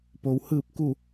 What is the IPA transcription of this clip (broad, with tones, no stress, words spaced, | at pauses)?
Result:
po˩w hɯː˧˩p̚ku˧˩